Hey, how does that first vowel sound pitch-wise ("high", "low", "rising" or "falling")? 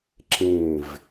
falling